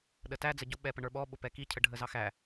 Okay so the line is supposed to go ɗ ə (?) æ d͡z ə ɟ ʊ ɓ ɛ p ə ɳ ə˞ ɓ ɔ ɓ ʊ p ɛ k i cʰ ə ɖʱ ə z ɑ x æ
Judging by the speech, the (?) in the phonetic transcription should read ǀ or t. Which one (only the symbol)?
t